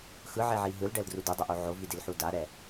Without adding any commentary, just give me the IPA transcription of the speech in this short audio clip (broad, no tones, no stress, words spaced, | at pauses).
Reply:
xɯʕeʕi ɦɯlɖɛldru dɯdˤʌʔo ʕovidilħu daɾɛ